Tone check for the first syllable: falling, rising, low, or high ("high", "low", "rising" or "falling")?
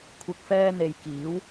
low